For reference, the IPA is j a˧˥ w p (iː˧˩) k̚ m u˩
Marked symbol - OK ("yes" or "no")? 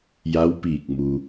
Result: yes